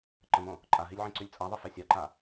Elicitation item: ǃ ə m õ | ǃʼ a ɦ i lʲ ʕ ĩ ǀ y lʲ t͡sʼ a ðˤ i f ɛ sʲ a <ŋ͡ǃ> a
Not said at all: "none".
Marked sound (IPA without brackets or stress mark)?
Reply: ǃ